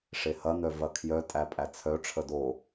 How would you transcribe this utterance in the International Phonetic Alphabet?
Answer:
ʂ e h ɐ n̪ œ v ɐ kʰ j œ tʼ æ pʼ æ t͡sʰ œ ʈ͡ʂʰ ə d o

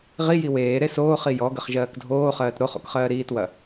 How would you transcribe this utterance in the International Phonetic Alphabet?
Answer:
ʁ i j i w eː ɾ e s oː χ i j ɔ ɡ ə χ ʒ ɜː k dʱ oː χ ɜː t ɾ o χ o̰ k χ ɜː ɾ iː t w ɐ

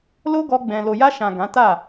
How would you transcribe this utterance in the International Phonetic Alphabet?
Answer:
l o˦ ɡ ɔ˧ ɡ͡b ɛ̃˨ l o˨ j a˧ ʃ ã˨ ɡ ã˨˦ t a˦˨

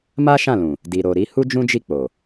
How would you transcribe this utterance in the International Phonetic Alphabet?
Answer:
m a˦ ʃ ã˦˨ l ũ˨ | d i˨ ɾ o˨ ɾ i˧ h u˦ d͡ʒ ũ˦ d͡ʒ i˦˨ k͡p o˨

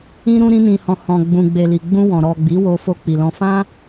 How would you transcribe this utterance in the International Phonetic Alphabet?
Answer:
ĩ˧ ɾ ũ˧ ɾ ĩ˧ n ĩ˨ h ɔ̃˨ h ɔ̃˨ ɡ͡b ũ˨ ɡ͡b e˨ l i˨ ɡ͡b ũ˧ w ɔ̃˨ ɾ ɔ˨ ɡ͡b i˨˦ w o˧ f o˧ k͡p i˨ l ɔ̃˧ f ã˦

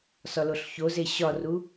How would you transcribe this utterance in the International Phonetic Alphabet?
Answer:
s ɒ l o ɬ ç o z e ɕ ɒ r u

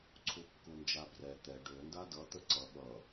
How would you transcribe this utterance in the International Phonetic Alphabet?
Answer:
ǀʰ u kː u n d͡ʒ a b r ɛ t̪ ɛ ɖ ø n d a d ʌ t̪ ə ǀ ʌ ɠ ʌ

